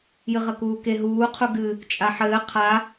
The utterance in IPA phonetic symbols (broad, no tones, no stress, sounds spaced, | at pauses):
j ɨ ʁ ɐ k uː k e ɦ uː qʰ u ɡ ɨ | t͡ʃʼ a ħ ɘː qʰ a